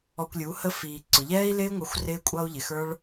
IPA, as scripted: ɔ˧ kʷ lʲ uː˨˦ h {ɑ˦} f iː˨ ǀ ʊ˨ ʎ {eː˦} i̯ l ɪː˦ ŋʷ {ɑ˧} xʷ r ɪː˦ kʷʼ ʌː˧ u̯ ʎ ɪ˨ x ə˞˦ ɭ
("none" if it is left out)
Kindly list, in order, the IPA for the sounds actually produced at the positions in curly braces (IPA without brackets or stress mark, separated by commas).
ə˦, ɛː˦, ɑ˧